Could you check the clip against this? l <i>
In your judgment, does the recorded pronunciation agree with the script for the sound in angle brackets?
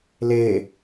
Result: no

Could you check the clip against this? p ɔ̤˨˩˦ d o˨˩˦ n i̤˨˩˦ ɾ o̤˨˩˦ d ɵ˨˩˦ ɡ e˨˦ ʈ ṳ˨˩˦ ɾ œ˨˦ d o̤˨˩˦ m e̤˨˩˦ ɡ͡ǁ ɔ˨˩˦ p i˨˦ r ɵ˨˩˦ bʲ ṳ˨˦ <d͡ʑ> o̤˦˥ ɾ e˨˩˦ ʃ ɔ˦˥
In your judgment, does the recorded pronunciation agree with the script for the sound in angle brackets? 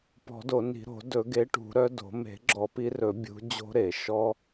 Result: yes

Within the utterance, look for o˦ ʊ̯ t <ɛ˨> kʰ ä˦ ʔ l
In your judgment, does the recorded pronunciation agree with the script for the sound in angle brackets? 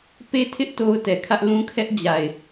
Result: yes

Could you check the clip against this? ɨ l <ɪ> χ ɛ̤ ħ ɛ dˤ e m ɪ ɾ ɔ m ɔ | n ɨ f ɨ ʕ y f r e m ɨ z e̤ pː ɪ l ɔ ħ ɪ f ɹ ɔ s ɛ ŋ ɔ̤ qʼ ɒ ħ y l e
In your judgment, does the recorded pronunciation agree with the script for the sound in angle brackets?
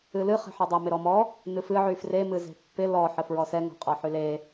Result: no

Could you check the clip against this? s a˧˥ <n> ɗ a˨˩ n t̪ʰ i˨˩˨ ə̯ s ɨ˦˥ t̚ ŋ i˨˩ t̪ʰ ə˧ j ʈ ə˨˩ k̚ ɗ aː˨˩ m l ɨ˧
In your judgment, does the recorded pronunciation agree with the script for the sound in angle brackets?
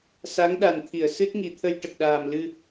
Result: no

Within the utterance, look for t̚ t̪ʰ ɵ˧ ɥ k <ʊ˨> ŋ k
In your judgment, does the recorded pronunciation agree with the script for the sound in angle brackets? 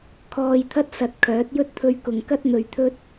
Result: yes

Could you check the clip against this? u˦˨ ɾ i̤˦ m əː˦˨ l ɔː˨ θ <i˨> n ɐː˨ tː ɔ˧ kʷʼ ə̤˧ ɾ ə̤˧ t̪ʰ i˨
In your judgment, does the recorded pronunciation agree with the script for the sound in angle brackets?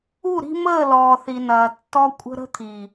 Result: yes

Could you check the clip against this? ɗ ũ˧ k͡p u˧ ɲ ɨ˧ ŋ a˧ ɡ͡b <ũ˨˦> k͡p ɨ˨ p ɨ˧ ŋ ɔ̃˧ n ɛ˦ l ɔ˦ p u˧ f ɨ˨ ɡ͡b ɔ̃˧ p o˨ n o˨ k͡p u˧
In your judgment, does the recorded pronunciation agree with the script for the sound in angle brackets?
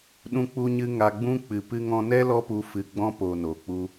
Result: no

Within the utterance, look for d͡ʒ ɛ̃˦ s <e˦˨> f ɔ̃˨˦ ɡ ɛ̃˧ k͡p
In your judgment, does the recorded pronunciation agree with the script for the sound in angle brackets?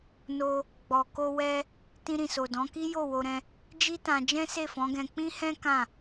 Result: yes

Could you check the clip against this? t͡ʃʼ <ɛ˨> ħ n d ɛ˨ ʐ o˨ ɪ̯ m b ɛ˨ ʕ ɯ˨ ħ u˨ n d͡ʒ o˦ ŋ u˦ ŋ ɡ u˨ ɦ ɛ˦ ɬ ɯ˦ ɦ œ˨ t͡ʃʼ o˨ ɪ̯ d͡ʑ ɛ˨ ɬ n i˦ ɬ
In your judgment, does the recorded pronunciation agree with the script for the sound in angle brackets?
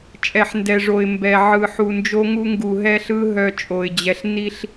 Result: yes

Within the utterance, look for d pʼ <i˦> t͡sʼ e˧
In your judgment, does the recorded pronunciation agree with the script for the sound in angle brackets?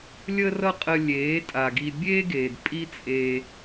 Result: yes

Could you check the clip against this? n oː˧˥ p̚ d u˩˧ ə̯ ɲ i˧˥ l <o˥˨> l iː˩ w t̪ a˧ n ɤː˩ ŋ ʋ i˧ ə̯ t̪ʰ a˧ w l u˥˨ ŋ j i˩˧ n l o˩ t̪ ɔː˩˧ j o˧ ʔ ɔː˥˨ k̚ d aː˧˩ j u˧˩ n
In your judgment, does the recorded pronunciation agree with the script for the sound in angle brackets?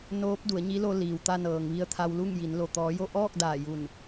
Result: no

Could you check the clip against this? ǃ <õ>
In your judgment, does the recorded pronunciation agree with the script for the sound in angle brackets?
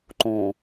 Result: yes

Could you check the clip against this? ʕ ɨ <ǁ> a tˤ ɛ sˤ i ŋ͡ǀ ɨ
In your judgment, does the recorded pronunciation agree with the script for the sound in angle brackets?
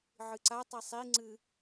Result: no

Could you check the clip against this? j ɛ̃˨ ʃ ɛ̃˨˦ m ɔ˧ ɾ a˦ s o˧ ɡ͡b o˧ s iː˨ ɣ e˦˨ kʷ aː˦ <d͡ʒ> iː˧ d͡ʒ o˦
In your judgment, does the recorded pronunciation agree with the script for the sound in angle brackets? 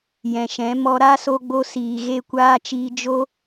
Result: no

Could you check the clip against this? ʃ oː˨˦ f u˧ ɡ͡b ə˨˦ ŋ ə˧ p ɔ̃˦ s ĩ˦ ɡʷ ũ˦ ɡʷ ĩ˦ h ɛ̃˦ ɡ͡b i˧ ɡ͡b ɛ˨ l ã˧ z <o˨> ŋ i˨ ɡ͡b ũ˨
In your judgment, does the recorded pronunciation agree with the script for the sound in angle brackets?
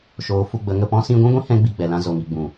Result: yes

